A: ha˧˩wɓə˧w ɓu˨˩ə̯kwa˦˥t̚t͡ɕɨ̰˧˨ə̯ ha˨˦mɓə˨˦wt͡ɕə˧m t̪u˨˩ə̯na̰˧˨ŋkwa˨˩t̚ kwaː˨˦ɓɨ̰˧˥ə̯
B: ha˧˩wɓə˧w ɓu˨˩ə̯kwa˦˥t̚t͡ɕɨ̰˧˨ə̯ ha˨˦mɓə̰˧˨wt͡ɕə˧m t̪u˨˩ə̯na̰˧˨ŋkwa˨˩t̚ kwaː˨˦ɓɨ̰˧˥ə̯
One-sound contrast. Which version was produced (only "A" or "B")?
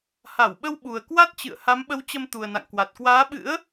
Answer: A